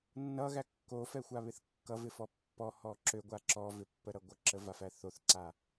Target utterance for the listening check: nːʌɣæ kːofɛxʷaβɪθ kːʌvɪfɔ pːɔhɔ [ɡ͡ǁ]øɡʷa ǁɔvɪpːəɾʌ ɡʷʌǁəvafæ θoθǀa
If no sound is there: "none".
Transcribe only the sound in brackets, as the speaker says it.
ǁ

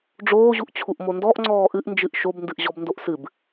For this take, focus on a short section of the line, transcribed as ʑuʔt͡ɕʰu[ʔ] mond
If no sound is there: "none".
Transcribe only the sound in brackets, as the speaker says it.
ʔ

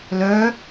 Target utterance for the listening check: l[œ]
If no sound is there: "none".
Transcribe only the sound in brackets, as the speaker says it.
œ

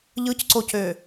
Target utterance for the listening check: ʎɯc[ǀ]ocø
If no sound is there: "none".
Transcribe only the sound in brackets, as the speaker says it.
ǀ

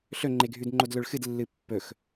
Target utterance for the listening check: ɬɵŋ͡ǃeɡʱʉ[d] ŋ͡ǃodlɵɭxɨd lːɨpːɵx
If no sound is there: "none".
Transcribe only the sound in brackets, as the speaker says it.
d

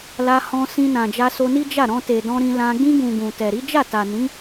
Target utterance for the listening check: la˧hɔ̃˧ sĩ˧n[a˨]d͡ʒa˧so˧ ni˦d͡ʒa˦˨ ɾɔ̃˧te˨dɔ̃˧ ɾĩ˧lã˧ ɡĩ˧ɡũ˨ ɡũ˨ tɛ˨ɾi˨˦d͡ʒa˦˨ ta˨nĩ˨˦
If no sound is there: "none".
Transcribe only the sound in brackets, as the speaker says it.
ã˨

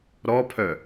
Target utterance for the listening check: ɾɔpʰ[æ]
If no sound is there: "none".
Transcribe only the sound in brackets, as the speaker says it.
œ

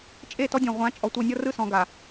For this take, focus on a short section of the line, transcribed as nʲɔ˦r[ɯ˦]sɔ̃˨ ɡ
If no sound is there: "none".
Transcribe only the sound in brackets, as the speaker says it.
ɯ˦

